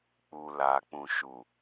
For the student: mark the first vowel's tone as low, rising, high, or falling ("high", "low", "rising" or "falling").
low